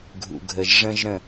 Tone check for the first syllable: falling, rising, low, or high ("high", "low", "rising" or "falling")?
low